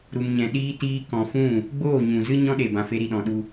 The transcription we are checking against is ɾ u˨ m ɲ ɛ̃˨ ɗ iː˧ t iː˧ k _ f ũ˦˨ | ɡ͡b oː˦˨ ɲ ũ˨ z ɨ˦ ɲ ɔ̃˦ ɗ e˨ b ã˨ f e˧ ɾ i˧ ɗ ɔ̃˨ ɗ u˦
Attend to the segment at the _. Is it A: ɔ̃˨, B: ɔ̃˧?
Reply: A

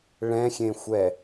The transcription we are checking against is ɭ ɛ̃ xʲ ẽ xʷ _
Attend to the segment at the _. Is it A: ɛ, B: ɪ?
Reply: A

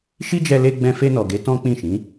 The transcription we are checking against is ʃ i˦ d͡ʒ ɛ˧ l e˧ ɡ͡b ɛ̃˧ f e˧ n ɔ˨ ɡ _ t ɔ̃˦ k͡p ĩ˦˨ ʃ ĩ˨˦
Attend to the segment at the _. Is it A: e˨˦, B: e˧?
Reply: A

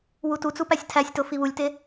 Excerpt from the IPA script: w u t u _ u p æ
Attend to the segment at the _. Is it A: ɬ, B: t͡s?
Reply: B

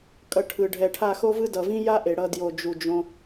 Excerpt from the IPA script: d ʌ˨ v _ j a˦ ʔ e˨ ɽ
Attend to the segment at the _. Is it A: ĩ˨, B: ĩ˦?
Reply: B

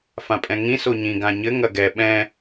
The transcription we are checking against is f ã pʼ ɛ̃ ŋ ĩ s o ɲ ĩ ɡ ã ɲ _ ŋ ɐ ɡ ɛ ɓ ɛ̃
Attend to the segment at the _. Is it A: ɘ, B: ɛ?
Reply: A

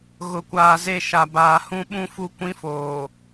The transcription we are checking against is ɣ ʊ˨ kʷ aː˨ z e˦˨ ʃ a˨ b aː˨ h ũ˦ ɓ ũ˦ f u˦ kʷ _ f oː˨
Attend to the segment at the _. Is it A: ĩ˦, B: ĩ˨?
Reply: A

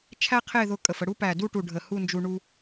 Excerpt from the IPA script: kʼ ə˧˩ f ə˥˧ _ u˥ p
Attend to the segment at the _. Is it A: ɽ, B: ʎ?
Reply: A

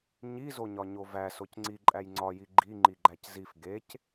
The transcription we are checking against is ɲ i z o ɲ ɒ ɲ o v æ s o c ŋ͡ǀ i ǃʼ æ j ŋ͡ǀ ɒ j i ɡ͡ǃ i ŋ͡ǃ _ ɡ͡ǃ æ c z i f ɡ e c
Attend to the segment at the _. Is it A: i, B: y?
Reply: A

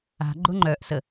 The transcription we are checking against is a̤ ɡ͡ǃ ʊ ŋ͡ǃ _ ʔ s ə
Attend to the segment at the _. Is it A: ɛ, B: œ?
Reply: B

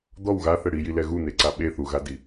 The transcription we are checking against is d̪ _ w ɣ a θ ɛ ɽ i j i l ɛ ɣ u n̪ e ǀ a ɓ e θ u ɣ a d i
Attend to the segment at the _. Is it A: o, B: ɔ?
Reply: B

